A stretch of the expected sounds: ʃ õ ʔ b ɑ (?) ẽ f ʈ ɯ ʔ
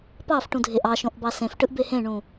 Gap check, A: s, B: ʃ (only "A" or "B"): A